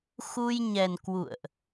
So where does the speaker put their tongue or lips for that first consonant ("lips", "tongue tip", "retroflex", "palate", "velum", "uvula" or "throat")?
velum